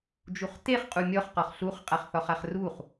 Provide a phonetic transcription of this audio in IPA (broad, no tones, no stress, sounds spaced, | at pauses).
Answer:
d͡ʒ u χ t e χ qʼ u mʲ ɔ χ q ɒ χ ɬ u χ qʼ a χ θ ɒ χ a χ r u χ